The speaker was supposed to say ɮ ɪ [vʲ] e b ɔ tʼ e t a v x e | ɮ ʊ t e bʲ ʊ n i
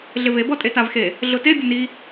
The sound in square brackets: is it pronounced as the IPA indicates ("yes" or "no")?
no